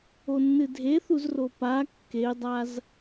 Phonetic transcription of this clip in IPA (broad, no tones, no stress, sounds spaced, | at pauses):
o nː ɨ dʱ e θ u z r o p a kː e dˤ a z